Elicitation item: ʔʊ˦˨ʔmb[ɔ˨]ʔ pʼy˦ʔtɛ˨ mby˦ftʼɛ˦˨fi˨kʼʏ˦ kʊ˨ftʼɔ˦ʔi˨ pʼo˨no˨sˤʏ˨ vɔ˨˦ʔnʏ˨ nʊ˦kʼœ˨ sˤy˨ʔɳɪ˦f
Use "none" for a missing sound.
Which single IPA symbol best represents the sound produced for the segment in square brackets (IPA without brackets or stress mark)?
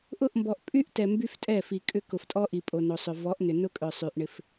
ɔ˨